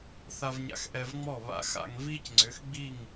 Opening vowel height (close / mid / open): open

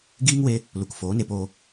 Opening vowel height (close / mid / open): close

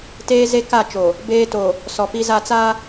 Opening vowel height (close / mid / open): mid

